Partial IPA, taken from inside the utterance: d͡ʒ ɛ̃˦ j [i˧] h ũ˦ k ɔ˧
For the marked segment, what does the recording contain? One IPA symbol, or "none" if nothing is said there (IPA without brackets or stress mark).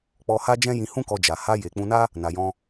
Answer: ĩ˧